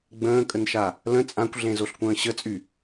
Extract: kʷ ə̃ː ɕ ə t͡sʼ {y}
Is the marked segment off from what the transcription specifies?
no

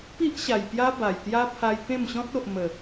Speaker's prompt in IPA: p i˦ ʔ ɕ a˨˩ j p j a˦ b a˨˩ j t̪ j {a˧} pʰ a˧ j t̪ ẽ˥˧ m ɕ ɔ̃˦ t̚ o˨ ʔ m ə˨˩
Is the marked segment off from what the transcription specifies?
yes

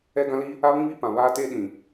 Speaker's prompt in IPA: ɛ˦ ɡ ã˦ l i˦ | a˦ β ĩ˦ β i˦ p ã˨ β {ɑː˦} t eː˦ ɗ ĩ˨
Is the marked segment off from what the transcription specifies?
yes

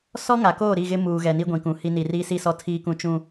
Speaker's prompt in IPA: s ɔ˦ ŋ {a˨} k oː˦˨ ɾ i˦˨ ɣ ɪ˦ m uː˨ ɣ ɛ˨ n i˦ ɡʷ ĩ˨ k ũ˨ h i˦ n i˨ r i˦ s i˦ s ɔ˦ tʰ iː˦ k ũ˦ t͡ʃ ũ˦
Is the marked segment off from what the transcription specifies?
no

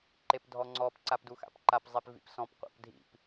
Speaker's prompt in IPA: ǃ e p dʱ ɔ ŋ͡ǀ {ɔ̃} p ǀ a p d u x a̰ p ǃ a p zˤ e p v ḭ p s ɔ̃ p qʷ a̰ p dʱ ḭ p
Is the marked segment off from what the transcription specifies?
yes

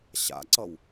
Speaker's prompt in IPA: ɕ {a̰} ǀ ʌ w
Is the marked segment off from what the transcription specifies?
no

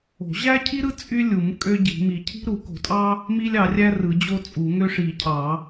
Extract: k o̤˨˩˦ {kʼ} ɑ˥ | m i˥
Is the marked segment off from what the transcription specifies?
yes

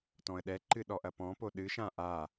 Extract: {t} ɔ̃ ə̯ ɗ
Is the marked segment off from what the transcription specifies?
no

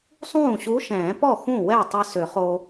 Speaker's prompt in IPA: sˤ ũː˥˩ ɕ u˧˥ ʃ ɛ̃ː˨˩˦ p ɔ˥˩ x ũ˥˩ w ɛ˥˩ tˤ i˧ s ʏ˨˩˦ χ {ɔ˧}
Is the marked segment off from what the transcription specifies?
yes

